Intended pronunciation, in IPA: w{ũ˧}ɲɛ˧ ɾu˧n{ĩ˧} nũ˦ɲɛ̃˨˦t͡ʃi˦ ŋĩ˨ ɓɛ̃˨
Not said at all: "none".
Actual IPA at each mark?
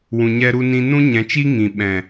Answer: ũ˨, ĩ˧

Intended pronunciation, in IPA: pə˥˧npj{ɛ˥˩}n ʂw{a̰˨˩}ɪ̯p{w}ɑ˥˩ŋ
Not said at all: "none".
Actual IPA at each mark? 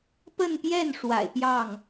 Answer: ɛ˥˩, a̰˨˩, j

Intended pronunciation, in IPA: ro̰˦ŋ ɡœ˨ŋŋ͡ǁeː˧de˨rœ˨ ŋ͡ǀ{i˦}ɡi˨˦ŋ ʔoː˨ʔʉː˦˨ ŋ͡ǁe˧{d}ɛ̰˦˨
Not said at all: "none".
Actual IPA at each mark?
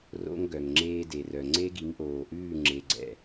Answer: e˦, ɡ͡ǀ

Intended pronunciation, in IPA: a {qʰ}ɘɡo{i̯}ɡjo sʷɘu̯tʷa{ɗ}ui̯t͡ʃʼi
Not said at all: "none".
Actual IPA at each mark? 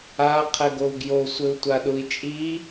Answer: qʰ, u̯, ɗ

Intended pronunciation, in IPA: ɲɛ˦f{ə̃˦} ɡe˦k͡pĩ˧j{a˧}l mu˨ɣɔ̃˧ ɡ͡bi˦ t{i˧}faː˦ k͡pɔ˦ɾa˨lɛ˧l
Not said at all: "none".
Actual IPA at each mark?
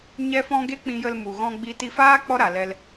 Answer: ɔ̃˦, ə˧, i˧

